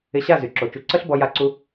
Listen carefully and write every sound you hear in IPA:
ɪ˧ ɕ a˦˨ z y˨ ǁ o˨ t͡ʃ u˧ ǀ ə˦ ɬ b ɔ˧ j a˦ ǀ u˦

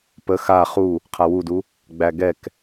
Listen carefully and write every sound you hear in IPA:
p ə x a χ u | qʰ a w u d u | ɡ͡b æ ɡ ɛ k

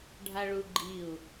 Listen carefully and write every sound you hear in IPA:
ɖʱ a ɭ u ɡ͡ǃ i u̯

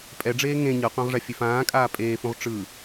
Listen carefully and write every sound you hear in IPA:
pʼ ɛ ɖ͡ʐ eː ŋ ẽ ɲ ɤ qʷ ã ʁ ʐ a fʲ e f ãː kʼ aː pʼ eː f ũ ʁ ʈ͡ʂ ɯ

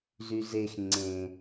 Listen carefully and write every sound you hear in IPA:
z y z e x ŋ͡ǀ ẽ

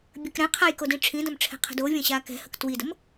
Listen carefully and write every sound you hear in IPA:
bʲ ə k ɾ ɛ̃ qʰ a j k o d ĩ ʈ͡ʂʰ ĩ d ɐ̃ m ʈ͡ʂʰ ɛ̤ qʰ ə̤ d o vʲ ɐ̃ ɕ aː k ɛ̤ h ə k t w i d ə m

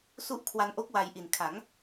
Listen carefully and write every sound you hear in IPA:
s u˦˥ ʔ kʰ w a˧ n ʔ o˦˥ k̚ w a˧ j ʔ i˨˩ n kʰ a˩˦ ŋ

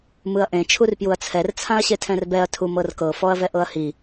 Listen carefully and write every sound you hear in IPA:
m ɯ ɐ̯ ʔ ẽ t͡ʃʰ u r p j u ɐ̯ t͡sʰ ɛ r t͡sʰ ã ɐ̯ ɕ e tʰ ɛ̃ r b ɛ ɐ̯ tʰ u m ɤ r k ɤ f ɔ ɐ̯ v ɛ ʔ ɤ ɐ̯ h i

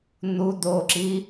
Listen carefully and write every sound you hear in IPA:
n̪ u d̪ o ǁ i

